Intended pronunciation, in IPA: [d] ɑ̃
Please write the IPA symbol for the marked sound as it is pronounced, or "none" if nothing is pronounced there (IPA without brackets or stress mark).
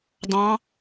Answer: d